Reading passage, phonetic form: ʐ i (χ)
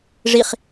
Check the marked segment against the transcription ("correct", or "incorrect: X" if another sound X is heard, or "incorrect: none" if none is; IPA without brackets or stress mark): correct